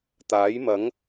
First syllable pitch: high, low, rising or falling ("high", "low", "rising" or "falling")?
rising